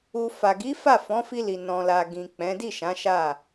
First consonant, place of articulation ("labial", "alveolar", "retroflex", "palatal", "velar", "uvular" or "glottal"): labial